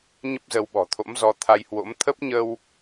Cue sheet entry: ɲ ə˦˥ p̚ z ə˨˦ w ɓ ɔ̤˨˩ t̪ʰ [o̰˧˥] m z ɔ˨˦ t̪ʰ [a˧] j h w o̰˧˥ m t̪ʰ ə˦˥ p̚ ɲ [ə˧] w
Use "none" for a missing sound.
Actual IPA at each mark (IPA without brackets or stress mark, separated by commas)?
o̰˧˥, a˧, ə˧